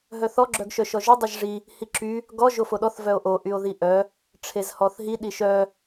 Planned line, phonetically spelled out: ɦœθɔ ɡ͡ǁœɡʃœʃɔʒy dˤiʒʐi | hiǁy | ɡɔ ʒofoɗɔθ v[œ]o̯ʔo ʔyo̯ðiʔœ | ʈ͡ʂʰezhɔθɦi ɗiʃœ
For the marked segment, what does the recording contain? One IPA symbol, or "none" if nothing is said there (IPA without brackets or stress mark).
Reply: œ